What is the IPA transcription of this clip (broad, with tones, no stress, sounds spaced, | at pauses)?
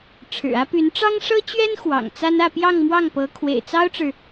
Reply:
ʈ͡ʂʰ ɻ̩˨˩ ä˥ p y˧˥ n ʈ͡ʂ ɑ˥ ŋ ʂ ɤ˥ t͡ɕ ɥ ɛ˥ n x w ɑ̰˨˩ ŋ t͡s a˥ n ä˥˧ p j ɑ˥˧ ŋ m w ɑ˥˩ ŋ p ɤ˧˥ kʰ w ḛ˨˩ ɪ̯ t͡s ɑ˥ ʊ̯ ʈ͡ʂ ɻ̩˨